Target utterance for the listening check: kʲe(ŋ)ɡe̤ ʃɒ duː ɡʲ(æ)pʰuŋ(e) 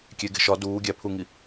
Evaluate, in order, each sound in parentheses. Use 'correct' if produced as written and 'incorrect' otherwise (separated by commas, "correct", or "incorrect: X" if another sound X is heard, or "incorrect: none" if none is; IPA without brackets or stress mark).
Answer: incorrect: none, correct, incorrect: i